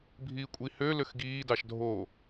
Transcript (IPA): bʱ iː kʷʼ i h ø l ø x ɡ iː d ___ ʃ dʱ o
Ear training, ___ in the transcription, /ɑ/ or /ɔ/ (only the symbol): ɑ